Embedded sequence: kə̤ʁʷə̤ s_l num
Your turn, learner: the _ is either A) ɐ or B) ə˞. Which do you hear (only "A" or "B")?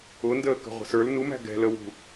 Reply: B